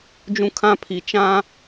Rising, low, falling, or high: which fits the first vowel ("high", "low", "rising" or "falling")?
high